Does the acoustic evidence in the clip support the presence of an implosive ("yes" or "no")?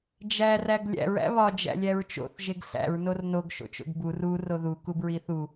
no